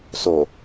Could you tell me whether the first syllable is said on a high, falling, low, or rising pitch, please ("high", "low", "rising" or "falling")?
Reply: low